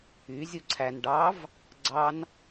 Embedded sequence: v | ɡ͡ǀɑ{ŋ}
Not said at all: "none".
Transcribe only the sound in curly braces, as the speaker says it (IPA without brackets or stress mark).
n